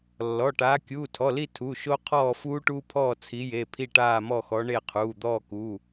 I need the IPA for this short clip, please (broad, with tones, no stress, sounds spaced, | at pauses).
lː ɔ˩˧˩ ʈ aː˨˦ kʲ uː˩˧˩ tʰ ɔ˩˧˩ l i˦˨ tʰ u˩˧˩ ʃ o˦ qʰ ɔː˦˨ f uː˦ ʈ uː˦ pʰ ɔː˦˨ t͡sʰ i˨˦ j e˩˧˩ pʰ i˦˨ ʈ aː˦˨ m ɔ˦˨ x ɔ˨˦ ɳ e˦˨ qʰ uː˩˧˩ d̪ ɔː˦˨ k u˩˧˩